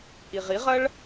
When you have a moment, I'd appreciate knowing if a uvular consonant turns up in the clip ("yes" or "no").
yes